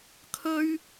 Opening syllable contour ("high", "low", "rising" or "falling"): high